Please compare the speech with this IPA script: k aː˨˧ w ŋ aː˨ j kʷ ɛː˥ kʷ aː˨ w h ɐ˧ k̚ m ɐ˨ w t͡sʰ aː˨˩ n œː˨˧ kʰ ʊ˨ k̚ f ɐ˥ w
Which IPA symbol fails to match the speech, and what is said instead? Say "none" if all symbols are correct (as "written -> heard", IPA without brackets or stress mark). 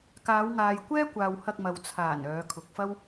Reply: none